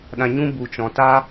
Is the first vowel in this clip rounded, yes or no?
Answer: no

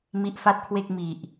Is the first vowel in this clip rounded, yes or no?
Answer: no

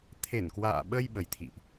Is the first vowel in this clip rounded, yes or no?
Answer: no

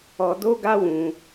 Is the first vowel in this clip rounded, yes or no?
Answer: yes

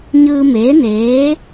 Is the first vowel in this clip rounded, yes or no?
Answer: no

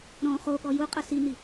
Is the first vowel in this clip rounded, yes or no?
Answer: yes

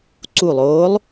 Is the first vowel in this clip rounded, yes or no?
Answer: yes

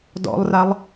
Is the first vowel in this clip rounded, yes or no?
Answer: yes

